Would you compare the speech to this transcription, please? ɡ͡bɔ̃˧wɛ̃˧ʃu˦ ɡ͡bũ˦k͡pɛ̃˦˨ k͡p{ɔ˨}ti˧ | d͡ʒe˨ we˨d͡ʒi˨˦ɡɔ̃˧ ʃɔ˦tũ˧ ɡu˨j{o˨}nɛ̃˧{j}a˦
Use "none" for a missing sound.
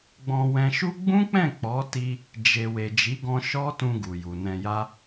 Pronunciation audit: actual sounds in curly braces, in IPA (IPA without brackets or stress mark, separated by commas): ɔ˨˦, u˨, j